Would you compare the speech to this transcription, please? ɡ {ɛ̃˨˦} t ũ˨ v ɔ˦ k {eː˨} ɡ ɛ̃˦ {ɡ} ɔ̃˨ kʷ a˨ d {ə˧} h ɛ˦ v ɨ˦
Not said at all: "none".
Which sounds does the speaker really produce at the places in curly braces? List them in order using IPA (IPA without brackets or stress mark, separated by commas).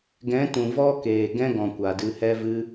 ɛ̃˨˦, eː˨, ɡ, ɨ˧